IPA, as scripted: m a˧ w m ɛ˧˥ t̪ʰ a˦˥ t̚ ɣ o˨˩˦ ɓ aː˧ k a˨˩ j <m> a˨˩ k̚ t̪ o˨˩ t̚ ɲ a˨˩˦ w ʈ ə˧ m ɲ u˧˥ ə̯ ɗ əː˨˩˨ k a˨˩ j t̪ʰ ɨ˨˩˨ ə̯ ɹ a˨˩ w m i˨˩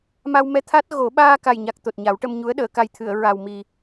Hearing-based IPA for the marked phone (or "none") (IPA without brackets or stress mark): ɲ